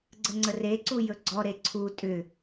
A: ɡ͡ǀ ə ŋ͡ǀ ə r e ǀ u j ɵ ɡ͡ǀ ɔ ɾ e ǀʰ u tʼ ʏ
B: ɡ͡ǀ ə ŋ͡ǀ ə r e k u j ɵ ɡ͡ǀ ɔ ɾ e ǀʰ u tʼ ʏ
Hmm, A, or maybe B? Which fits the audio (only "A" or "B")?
A